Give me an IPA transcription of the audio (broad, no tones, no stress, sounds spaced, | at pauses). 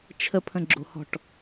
t͡ʃʰ ə pʰ ə̃ ɡ͡ǁ o̤ h ɔ̤ ʈ